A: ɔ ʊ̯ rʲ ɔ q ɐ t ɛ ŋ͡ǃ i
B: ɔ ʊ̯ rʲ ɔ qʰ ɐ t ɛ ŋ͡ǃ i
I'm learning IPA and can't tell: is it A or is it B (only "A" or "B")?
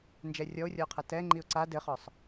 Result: B